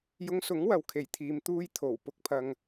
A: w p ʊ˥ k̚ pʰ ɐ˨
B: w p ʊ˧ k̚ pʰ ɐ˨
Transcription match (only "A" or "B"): B